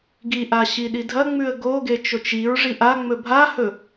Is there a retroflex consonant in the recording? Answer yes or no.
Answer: yes